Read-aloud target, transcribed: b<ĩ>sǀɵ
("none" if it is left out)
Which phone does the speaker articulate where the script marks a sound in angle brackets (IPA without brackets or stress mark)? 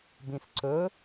ĩ